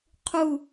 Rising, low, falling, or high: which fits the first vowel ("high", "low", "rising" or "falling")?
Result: falling